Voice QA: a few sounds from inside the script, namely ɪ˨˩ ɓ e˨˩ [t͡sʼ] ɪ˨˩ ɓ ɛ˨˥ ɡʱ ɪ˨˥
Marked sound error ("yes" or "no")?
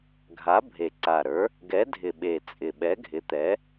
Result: no